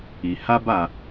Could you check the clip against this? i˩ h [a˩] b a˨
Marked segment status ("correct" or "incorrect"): incorrect